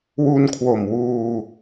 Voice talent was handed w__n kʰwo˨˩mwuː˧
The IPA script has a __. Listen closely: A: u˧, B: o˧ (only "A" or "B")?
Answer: A